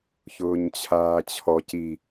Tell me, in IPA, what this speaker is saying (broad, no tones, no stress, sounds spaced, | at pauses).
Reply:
ç ʊː ɲ t͡ɕʰ aː t͡ɕʰ ɔ c i